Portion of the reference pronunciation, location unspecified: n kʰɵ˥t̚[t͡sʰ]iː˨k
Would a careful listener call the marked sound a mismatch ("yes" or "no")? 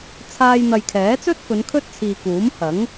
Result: no